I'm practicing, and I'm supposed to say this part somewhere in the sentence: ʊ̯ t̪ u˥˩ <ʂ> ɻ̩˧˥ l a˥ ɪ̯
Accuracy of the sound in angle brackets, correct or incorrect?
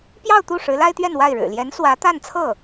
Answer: correct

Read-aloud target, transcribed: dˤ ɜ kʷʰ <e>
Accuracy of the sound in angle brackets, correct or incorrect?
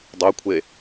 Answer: correct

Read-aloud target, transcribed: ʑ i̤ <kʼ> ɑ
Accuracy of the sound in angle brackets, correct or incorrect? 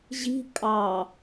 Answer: correct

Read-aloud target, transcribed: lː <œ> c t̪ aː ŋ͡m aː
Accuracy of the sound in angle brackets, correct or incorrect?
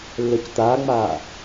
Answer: correct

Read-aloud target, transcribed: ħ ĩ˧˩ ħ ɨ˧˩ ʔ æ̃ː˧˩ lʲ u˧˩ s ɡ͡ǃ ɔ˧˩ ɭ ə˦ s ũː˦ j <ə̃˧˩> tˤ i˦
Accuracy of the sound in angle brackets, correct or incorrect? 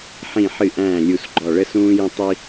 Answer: incorrect: ə̃˦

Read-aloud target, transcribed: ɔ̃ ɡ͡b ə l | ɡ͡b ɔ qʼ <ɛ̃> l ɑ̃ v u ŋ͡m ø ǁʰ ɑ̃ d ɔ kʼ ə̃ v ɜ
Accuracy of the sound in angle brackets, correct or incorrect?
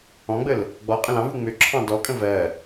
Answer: incorrect: ə̃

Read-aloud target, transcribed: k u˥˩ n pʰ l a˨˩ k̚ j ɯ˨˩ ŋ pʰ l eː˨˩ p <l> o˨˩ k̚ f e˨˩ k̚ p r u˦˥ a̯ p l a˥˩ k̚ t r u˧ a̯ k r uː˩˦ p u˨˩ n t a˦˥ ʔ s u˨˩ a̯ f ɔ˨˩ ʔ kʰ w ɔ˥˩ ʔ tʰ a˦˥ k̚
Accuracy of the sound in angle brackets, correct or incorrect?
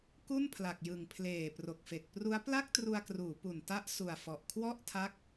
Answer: incorrect: r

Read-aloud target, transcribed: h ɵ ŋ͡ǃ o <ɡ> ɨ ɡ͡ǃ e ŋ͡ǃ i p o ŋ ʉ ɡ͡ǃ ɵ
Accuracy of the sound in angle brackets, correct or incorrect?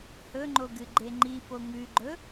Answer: correct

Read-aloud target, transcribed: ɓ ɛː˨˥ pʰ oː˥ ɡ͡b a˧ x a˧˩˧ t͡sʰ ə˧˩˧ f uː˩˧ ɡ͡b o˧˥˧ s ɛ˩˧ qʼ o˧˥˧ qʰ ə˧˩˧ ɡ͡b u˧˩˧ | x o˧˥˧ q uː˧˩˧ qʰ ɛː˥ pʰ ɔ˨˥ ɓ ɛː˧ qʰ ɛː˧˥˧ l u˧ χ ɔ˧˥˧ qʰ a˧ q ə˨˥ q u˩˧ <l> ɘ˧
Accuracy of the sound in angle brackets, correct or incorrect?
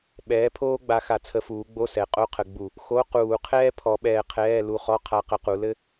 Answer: correct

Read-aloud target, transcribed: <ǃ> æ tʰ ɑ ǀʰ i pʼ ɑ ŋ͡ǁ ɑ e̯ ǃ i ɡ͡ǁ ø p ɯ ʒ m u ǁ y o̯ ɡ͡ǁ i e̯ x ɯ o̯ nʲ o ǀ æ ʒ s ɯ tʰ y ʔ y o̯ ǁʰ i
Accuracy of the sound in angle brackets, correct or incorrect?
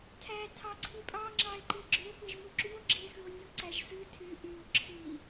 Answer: incorrect: tʰ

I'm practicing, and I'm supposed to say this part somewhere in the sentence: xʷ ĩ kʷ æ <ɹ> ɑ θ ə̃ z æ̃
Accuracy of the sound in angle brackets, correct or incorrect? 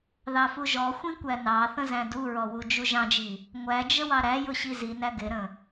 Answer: incorrect: n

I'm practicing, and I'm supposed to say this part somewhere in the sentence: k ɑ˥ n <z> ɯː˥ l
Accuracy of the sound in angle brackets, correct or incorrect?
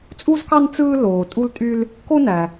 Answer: incorrect: t͡s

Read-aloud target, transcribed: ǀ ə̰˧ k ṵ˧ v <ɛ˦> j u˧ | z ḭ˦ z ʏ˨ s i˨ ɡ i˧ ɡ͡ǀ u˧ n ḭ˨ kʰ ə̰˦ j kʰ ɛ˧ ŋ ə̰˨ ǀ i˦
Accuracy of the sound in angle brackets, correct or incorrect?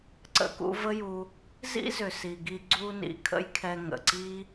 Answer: incorrect: ə˦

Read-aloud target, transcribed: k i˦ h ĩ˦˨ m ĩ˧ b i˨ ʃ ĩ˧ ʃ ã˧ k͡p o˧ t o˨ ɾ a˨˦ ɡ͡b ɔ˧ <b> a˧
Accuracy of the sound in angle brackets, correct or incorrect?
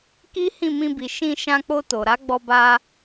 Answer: correct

